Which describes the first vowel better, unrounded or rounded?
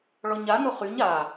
rounded